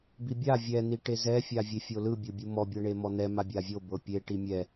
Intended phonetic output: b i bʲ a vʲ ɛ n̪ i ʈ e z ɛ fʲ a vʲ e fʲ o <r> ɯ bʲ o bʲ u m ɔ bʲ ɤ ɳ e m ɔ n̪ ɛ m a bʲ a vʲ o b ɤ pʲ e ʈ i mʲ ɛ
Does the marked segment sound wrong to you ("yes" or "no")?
yes